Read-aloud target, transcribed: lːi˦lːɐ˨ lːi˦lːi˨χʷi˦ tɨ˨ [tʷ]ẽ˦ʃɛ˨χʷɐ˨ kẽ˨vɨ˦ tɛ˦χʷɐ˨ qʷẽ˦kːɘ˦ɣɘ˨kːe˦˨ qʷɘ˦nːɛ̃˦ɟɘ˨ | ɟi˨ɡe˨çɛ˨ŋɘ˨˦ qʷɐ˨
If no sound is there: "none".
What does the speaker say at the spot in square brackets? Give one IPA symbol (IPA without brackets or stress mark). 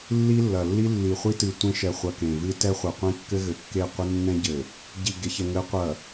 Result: tʷ